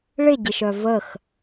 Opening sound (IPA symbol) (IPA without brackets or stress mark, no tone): ɭ